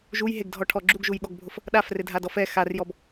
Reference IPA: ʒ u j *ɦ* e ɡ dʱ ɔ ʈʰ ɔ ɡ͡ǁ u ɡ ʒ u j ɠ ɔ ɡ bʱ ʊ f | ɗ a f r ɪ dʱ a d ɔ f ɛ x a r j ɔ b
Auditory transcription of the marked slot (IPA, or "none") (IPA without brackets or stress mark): ɦ